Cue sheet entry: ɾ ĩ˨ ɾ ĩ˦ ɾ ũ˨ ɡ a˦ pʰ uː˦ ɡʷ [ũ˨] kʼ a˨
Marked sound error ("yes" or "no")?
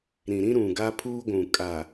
no